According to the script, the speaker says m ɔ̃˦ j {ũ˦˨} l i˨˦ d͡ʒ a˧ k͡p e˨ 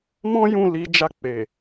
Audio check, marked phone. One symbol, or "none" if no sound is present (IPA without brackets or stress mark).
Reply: ũ˦˨